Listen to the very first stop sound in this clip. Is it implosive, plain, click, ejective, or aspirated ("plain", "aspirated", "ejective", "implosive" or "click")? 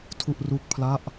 aspirated